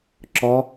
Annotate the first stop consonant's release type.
click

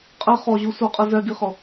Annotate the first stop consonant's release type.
ejective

